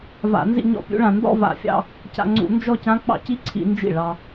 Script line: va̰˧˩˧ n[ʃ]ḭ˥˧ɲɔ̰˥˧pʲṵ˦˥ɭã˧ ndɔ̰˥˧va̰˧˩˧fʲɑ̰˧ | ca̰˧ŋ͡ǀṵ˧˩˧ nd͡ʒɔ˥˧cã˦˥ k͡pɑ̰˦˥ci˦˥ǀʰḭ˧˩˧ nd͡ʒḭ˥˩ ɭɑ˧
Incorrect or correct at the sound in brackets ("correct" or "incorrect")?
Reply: incorrect